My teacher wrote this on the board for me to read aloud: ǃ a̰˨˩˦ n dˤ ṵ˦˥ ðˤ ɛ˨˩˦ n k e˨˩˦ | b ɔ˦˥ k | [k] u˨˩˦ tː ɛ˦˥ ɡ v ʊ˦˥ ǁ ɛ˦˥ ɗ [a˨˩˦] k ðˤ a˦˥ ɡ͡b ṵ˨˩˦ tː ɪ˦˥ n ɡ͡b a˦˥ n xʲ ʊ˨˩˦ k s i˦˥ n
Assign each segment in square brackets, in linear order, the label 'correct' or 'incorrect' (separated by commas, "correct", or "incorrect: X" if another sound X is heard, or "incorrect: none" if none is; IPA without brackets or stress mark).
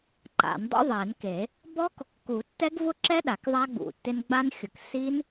correct, correct